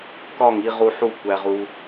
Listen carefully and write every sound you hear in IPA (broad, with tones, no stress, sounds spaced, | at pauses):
k ɒ˦˨ ŋ i˧ ʁ u˧ ħ u˦˨ kʷ æ˧ ʁ u˧